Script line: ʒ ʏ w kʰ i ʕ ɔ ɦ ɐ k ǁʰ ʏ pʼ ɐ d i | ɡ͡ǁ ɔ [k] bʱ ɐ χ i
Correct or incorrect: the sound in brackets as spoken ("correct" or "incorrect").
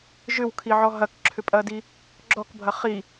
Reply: correct